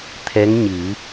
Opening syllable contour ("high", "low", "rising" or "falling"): rising